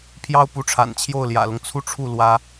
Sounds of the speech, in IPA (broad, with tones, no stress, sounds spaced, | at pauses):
pʰ j ɑ˥ ʊ̯ p u˧˥ ʈ͡ʂʰ a̰˨˩ n t͡ɕʰ j o˥˩ ʊ̯ l j ä̰˨˩ l ʊ˦ ŋ t͡sʰ u˥˧ ʈ͡ʂʰ u˥˩ l w ä˥